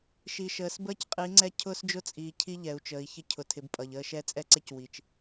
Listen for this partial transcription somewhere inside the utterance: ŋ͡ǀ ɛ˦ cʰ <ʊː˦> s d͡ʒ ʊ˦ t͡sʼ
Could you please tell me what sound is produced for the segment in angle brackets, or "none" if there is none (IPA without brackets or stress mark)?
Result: ʊː˦